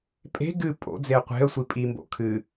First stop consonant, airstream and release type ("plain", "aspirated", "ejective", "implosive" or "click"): ejective